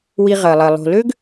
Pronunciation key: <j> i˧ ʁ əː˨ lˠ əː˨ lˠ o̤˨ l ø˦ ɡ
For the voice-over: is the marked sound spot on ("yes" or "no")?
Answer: no